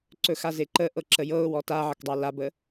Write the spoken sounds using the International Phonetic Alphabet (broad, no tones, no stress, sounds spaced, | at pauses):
ǀ ɵ x a z e ǃ ə ʔ ɤ ǁ ə j ɤ ʊ̯ w ɔ t a ʕ ə k dˤ ɑ l a b ə